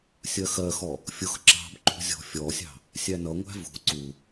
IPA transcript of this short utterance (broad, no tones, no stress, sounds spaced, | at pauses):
sʲ ɜ x ɜ x ɔ | fʲ ʊ x ǁ ɑ̤ b ǃ ṳ zʲ ɔ̤ fʲ ɔ sʲ ɑ̤ | sʲ æ n ʌ ŋʷ æ̤ v ṳ ǀ u